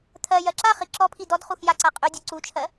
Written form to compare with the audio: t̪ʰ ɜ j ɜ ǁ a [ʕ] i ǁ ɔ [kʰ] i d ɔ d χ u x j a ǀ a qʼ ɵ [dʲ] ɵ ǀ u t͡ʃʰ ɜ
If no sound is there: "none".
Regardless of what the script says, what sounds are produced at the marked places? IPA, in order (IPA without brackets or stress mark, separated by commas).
χ, pʰ, dʲ